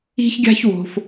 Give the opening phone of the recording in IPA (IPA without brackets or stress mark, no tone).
i̤